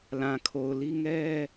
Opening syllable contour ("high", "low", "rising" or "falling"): low